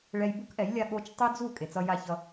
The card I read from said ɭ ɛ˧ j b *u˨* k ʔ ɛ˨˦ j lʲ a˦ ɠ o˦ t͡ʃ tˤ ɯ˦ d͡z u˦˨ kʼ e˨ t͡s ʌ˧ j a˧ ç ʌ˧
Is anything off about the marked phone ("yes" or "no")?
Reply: yes